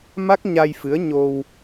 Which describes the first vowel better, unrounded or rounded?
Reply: unrounded